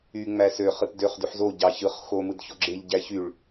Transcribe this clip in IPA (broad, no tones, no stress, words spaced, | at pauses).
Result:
y ŋ͡mæsøχ ɯtdøχ dyħzo ɟɑçɯχ xo mɯdçoɡ͡ǁeʎ ɟæçyɭ